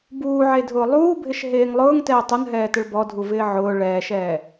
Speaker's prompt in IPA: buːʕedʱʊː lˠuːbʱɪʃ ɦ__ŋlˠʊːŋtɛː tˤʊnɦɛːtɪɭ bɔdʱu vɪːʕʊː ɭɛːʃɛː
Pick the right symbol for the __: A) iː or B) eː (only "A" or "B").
B